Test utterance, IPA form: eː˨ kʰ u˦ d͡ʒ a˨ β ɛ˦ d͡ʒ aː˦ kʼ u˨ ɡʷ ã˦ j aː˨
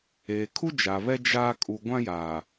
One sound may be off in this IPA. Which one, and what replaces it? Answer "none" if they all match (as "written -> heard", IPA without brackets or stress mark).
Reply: none